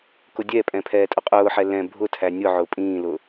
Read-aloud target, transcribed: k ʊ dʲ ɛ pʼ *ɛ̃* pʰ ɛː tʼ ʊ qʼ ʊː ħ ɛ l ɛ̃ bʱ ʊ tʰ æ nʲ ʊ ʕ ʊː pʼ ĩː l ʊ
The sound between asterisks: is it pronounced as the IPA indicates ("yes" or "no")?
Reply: yes